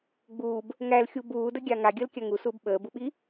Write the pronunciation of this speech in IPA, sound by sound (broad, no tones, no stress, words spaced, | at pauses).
ɡ͡buːb | ŋælxʲu buːdəɡʲa ŋaɡʲəːlkʲa ŋusuːb ɓəːbuɓi